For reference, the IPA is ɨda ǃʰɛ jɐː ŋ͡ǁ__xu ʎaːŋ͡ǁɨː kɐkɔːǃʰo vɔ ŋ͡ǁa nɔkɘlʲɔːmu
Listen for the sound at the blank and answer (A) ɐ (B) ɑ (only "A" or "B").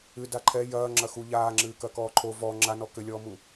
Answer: A